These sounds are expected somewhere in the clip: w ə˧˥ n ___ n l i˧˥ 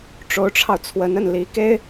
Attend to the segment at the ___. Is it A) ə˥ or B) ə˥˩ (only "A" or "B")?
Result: B